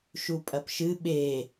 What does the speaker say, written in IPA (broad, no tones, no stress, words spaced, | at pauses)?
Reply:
ʃupʼɐpʃɨ ɓe